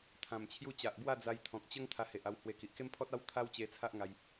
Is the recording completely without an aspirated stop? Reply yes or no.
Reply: no